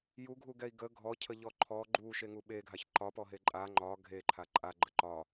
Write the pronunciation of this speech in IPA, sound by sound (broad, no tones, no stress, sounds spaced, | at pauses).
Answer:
j u ɡʱ u ɡ ɛ i̯ ɡ ə ɡʱ ɔ cʰ ə ʎ ɔ ǃʰ ɔ ɡ͡ǃ u ʃ e ŋ u ɓ e ɡʱ a ç ǃ ɒ p ɔ ɦ e ǃʼ a ŋ͡ǃ ɒ ɡʱ e ǃʰ a ǃʼ a ɡ͡ǃ ə ǃ ɒ